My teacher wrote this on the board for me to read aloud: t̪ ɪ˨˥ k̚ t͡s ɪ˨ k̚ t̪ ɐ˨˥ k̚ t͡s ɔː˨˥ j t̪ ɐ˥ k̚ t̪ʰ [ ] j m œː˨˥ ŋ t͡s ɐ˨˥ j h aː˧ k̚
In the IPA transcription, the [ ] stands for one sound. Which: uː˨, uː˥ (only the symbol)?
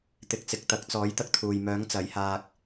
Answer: uː˨